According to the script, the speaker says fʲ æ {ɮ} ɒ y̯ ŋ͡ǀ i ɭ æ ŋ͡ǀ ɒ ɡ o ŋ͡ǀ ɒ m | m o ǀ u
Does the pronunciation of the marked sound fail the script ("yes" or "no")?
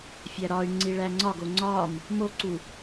yes